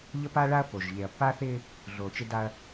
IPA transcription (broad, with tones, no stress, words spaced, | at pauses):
ʎə˦pa˦ ɭa˦ɐ̯ po˨ʒ ʎe˨ɐ̯ pːaː˦θɪː˦ | ɮoː˨t͡ʃɪ˦da˦ɐ̯